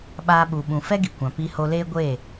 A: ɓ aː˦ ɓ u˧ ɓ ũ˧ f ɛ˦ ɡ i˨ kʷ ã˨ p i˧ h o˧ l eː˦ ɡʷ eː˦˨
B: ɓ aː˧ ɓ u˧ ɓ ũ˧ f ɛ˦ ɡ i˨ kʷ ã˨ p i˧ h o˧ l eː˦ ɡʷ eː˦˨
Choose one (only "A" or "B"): A